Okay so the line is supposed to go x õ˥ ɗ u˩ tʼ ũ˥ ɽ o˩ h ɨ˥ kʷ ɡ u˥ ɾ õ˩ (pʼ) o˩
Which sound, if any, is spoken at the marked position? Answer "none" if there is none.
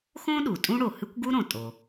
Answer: tʼ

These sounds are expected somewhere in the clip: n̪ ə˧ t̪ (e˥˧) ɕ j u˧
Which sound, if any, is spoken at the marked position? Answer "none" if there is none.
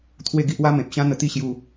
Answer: i˥˧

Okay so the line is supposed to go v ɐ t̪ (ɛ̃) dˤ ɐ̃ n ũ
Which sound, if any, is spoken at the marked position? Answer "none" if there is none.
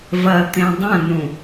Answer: ẽ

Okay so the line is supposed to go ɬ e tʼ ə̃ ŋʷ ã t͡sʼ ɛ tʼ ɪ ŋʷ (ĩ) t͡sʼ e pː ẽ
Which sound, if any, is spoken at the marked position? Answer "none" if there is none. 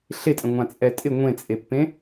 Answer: ẽ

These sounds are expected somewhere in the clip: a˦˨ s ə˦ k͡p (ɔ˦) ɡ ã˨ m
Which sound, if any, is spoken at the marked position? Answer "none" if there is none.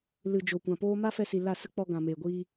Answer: ɔ˧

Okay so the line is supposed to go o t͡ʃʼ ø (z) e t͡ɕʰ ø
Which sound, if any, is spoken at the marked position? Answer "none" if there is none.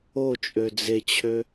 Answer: d͡z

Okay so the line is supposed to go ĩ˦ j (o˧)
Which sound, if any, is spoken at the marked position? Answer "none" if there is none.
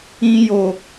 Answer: o˧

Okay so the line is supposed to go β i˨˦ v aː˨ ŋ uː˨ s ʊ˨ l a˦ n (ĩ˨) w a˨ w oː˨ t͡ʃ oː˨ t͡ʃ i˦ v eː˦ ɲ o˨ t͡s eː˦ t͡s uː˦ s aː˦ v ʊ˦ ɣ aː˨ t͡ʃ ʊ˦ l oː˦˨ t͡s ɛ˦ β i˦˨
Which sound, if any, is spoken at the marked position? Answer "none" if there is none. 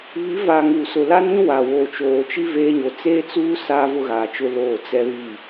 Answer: ĩ˦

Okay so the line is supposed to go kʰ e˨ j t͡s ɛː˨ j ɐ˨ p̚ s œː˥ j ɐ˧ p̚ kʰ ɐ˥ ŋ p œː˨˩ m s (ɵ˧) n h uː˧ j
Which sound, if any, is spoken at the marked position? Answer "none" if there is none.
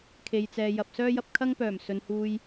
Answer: ɵ˨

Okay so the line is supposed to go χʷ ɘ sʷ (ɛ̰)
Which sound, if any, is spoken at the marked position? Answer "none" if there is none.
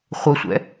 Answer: ɛ̰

